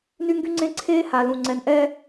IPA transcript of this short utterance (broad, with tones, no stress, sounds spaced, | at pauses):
n y˦ ŋ ɡ y˦ ŋ͡ǀ ẽ˦ ǀʰ eː˦ h a˨ l ũ˨ ŋ͡ǀ ɛ˨ n ʔ ɛː˦